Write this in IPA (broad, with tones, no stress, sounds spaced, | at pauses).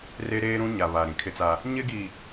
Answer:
r e˦ ɾ eː˦ ɾ ũ˦ ɲ a˨ β a˨ ɾ ĩ˨ kʰ ɪ˦ t͡s a˦ | ɲ ɪ˦ ɡ i˨